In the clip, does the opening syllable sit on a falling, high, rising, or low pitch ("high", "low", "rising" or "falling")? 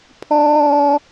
high